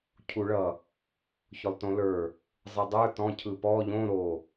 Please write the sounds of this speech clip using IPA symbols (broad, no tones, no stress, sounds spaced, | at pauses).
cʰ u ɭ ʌ | ç ʊ lˠ t õ l ə˞ | zˤ ɯ dˤ ə˞ t ɔ̃ cʰ ɯ p ɔ ʎ õ ɾ o